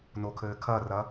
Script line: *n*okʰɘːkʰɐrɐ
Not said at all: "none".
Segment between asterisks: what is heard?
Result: n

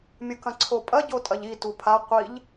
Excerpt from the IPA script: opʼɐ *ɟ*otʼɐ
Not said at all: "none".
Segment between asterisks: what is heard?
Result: ɟ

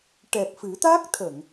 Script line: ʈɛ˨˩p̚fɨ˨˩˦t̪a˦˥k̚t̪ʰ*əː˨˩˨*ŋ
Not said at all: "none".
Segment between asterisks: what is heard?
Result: ə˨˩˨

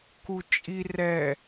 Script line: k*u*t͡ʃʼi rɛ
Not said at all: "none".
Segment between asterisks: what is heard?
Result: u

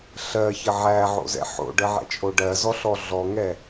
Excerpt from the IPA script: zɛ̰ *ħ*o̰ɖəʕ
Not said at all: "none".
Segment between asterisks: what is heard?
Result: ħ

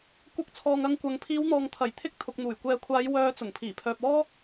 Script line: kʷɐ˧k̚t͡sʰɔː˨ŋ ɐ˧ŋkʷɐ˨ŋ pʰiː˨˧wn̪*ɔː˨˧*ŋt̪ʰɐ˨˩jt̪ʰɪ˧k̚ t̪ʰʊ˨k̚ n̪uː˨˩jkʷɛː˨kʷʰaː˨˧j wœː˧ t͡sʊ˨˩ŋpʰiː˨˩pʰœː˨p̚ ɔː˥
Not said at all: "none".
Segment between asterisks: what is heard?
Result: ɔː˨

